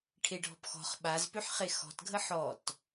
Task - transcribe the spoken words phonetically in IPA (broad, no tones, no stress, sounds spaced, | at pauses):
ʈʰ e ɖʱ ɔ̤ p x ɔ̤ χ ɓ a z p ø ħ χ e x ɔ̤ t ɡʱ ə ħ ɔ t